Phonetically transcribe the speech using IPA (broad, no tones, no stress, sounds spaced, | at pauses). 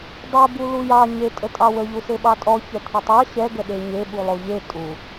dˤ ɛ b u l u j ɑ ɲ e tʼ ə tʼ ɑ w ə ʎ u s e ɓ ɑ tʼ ɔ ç ɛ t̪ʰ ɛ tˤ ɑ ɕ ɛ ɡ ə ɗ e ɲ e ɓ u lˠ o ʎ e tʼ u